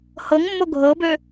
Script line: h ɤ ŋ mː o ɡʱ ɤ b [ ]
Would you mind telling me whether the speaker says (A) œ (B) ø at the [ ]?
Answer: B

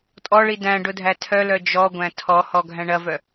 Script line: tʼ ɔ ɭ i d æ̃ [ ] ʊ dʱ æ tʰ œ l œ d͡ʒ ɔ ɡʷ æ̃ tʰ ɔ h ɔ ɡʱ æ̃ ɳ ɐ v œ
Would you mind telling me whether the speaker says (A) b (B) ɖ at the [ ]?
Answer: B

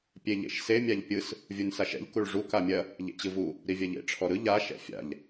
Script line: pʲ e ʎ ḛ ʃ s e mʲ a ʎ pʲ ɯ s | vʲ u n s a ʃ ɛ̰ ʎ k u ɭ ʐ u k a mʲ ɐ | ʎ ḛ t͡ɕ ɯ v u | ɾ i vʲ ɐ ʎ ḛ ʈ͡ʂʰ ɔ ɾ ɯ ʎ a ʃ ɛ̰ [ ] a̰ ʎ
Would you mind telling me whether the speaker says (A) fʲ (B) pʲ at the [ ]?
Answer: A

